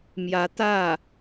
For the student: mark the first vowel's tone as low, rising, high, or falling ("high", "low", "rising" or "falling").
rising